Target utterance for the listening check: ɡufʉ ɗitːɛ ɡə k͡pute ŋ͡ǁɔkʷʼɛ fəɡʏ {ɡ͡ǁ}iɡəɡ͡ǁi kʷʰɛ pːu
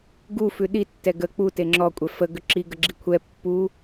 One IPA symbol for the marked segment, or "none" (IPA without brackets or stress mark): ǁ